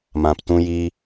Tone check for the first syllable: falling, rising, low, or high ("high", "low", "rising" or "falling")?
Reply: low